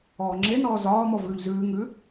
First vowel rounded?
yes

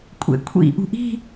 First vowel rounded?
no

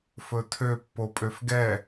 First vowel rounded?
yes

